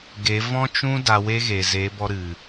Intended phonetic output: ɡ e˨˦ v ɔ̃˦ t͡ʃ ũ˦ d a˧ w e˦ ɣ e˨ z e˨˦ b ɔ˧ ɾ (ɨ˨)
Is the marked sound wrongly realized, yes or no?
no